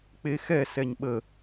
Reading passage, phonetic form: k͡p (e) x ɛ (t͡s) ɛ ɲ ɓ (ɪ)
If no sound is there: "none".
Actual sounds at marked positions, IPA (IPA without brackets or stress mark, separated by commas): e, s, ə